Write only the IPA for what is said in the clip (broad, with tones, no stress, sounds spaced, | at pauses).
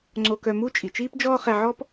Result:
ŋ͡ǀ o˧ k œ˧ m u˥ t͡ʃʼ i˩ t͡ʃ iː˥ p d͡ʒ ɔː˥ χ ɛ˧ ʕ ɔ˥ p